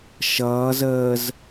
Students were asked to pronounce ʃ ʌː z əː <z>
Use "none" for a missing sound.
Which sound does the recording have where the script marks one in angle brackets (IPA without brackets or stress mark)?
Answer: z